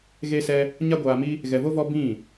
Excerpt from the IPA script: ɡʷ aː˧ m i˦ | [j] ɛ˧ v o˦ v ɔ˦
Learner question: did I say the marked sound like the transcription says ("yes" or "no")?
no